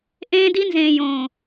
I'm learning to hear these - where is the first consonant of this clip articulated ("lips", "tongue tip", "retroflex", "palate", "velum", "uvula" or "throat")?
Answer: throat